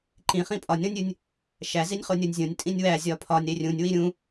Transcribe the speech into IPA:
ǃĩχĩ pʼɒnʲɾõnʲɾʲunʲ | ʃæzinʲχo nʲonʲzʲõnʲ tʼĩnʲwæ zʲɒpʰɒnʲ ɾerʲũnʲ wiɾʲũ

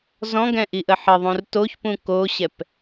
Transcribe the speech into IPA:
zɔ̃ɡɛ̃ʔiʔə ħəðˤũr toçpũ koɕɛp

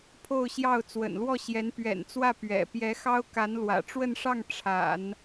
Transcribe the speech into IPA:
pʰo˥˧ʊ̯ɕjɑ˥˩ʊ̯ t͡swə̰˨˩nlwɔ˥˩ɕjɛ˧˥n pɥɛ̰˨˩nt͡swä˥˩ pɥɛ̰˨˩ pjɛ˧˥xɑ˥ʊ̯ka˧˥n lwä̰˨˩ʈ͡ʂwə˥˧nʂɑ˥˩ŋ ʈ͡ʂʰa̰˨˩˦n

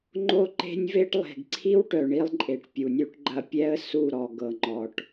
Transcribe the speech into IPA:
ŋ͡ǃo˦ǃe̤˦nʲve˦ʈ lˠe̤˨ɡǀʰi˦wʈœ˨ ɳi˧lˠǃʼe˨ʈ pʲu˨nʲu˧ʈɡ͡ǃɐ˧pʲɛ˦ə̯ su˦˨ ɾɔ˨ɡɤ˨ ŋ͡ǃɔ˨ʈ

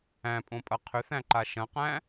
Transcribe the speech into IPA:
æ̃pʼõpʼɐ qʰʏθæ̃ǃa ʃɐ̃qæ̃

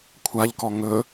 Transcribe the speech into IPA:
kʷʰaʎkɔ ŋɵ

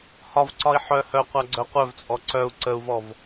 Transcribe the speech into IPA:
hɒvǀɒi̯ ħœ hœ qʷaɡ͡ǀœqʷœvt͡sʼɔ ǀœu̯ ǀəu̯vɔv

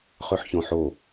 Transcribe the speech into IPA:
χøħçõħo

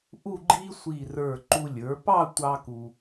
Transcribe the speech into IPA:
ʔu˥˧ɡ͡ǃi˥ sʷi˧˩rə˞˧˩ ǃu˧ lʲə˞˩˧ pɑ˥˧tʷɑ˧ ku˧

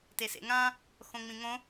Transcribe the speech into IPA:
tesḛŋã | xõŋ͡mĩŋõ

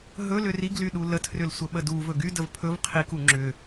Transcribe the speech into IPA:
ɦɵ lʏriɡly ɗulətʰrʏl sʷəɓəduvɵ ɡydəv pʰɵv qʰiku ŋ͡ǁʏ

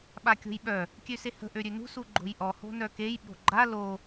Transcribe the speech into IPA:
ɓakʲo̤jɓœ | kʲøsehə̤ ʔøɾʲønṳs uɡ͡ǃo̤jʔɔ ho̤nœkej ɓo̤ɡ͡ǃa lo

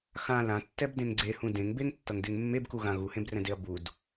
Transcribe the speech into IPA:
xã lãtːɛbdẽŋ ɡ͡ǀehũ dẽŋ beŋtːʌŋdeŋ mːebkuɣã ɣuhẽbrɛ̃deɐ̯ bud

